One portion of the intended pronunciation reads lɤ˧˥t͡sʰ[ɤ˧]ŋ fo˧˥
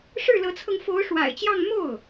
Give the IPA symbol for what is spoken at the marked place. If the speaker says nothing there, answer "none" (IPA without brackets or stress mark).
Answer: ɤ˧